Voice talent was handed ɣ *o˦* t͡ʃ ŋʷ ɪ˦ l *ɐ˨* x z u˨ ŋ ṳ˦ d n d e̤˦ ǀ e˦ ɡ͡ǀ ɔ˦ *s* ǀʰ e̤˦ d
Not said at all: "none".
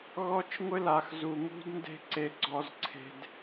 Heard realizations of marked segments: ɔ˦, a˨, z

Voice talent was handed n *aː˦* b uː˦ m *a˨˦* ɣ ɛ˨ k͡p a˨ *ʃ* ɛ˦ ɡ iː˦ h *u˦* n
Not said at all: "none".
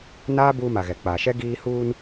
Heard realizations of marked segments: aː˦, a˨, ʃ, uː˦

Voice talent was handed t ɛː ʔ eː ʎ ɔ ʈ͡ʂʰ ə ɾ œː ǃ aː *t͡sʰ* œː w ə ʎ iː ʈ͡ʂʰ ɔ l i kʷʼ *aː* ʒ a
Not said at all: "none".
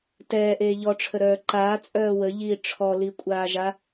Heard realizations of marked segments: t͡sʼ, aː

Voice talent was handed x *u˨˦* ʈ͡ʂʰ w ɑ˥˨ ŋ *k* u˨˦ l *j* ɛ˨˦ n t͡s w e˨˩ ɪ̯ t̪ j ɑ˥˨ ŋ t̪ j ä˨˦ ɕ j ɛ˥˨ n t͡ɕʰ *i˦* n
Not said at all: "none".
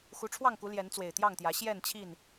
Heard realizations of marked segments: u˨˦, k, j, i˥˨

